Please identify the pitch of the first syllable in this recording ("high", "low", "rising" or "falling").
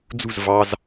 falling